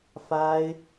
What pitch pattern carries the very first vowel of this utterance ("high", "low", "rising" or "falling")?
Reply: high